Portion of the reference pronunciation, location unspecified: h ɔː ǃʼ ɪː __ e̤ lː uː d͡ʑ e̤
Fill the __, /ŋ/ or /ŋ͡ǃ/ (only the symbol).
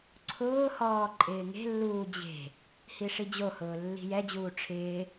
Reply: ŋ